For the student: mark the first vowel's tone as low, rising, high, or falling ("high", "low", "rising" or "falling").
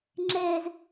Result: high